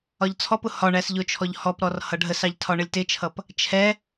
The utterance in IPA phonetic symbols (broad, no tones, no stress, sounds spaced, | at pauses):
ɒ ʎ t͡sʰ ɔ p ʊ h ɒ ɳ æ s ʎ ʊ t͡ʃʰ ɔ ʎ h ɔ p ɾ ɔ r h ʌ ɖʱ ə s ɑ ʎ tʰ ɒ ɳ ə lʲ t ɪ t͡ʃʰ ʌ p | t͡ʃʰ ɛ